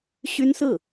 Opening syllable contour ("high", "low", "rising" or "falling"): high